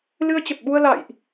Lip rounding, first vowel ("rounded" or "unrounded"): unrounded